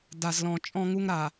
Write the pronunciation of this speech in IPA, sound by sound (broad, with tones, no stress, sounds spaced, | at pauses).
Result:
d a˨ z l ɔ̃˨ t͡ʃʼ ɔ̃˦ ŋ u˦ ŋ ɾ a˨